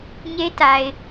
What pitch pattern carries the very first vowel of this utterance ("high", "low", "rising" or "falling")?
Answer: high